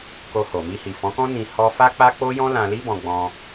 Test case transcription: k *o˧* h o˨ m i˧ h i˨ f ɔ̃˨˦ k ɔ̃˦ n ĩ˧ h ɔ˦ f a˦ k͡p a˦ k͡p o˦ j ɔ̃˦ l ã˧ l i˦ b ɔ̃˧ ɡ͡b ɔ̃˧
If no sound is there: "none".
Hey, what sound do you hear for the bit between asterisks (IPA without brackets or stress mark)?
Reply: o˧